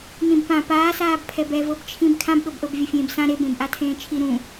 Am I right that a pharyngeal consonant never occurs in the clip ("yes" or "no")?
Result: yes